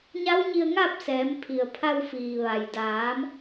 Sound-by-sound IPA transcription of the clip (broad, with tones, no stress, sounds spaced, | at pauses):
ɲ a˧˥ w ɲ i˧ ə̯ ŋ a˥˨ p̚ s ɛː˩˧ m pʰ i˩ ə̯ pʰ a˧ w f iː˩ ʋ a˩ j d aː˩˧ m